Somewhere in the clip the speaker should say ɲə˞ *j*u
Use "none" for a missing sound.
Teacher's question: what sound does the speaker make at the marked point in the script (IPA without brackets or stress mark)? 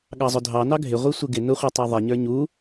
ɲ